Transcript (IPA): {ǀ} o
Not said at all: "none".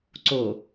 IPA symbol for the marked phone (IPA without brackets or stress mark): ǀ